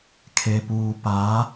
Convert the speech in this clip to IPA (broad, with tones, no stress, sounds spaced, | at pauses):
kʰ e˨ p uː˨ p a˨˦